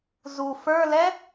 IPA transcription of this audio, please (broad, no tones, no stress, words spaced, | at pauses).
zu fə˞lɛ